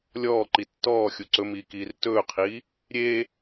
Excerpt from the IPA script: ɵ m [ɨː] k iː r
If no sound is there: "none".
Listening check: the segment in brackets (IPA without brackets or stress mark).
iː